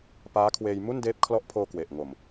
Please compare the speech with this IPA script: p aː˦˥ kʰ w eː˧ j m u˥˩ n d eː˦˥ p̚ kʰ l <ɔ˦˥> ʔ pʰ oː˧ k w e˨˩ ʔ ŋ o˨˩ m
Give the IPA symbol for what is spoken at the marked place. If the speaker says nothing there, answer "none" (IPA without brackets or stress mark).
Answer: ɔ˦˥